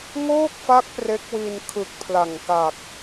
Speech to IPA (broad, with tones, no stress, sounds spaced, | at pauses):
ŋ oː˥˩ k̚ f a˦˥ k̚ p r e˦˥ k̚ w i˧ n kʰ ɯ˨˩ k̚ pʰ l a˨˩ ŋ k a˨˩ k̚